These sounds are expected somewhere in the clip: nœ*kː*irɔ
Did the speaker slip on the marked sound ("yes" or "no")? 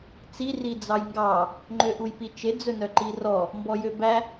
yes